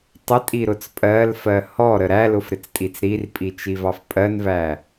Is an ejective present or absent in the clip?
present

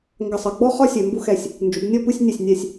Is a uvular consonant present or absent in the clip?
present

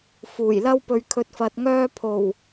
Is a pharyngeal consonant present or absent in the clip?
absent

